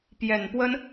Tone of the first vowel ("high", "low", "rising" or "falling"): low